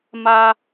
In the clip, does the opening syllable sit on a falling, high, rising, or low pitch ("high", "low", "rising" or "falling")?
high